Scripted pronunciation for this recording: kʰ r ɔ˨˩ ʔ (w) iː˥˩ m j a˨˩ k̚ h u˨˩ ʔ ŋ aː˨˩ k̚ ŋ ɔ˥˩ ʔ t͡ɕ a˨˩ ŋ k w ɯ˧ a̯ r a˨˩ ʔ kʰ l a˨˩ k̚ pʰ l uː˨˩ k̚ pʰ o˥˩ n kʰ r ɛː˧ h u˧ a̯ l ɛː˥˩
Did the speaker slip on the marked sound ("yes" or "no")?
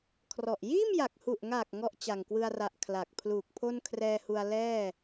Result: yes